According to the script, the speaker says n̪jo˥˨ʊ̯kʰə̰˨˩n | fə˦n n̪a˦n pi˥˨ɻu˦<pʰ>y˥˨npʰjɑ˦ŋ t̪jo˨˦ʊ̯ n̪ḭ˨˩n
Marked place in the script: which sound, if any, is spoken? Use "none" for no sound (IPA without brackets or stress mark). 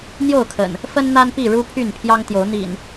pʰ